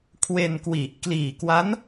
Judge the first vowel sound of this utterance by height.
mid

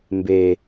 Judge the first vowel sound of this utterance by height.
mid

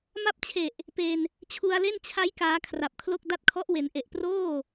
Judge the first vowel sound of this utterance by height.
low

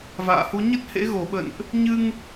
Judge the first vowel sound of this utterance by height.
low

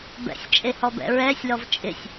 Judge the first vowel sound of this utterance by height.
mid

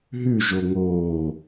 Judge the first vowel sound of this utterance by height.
high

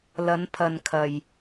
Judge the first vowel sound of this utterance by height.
low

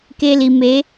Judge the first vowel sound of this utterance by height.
mid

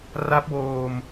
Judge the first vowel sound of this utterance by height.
low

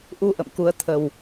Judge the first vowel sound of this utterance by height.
high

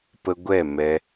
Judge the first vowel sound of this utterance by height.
mid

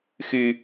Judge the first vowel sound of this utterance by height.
high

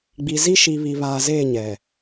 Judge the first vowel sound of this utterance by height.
high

